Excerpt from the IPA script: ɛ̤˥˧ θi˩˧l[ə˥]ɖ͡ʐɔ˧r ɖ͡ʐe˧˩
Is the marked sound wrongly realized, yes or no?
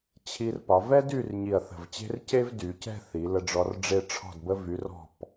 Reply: yes